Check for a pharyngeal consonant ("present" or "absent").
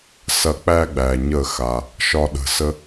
absent